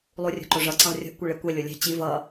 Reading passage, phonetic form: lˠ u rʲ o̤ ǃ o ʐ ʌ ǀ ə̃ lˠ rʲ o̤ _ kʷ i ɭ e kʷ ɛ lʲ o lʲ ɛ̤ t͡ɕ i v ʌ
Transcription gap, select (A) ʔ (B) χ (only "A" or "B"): A